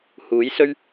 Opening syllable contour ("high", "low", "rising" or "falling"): rising